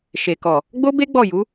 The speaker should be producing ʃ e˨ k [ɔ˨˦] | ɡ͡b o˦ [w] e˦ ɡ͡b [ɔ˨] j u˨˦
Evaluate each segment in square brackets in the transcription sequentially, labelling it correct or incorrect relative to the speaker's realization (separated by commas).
incorrect, incorrect, incorrect